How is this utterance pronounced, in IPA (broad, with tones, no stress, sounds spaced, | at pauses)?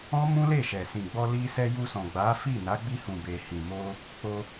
ɔ̃˦ m ũ˦ l e˦˨ ʃ ɛ˨ s ĩ˨ ɡ͡b ɔ˧ l i˧ s ɛ˧ j u˧ s ɔ̃˨ ɡ͡b a˨˦ f i˦˨ n a˨˦ ɡ͡b i˧ h ũ˨ b e˨ h ĩ˨ m o˧ | k͡p o˧